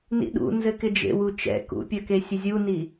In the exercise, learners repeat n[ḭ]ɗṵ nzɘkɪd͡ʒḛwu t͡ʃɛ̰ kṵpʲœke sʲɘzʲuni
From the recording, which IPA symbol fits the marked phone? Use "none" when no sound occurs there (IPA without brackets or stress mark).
ḭ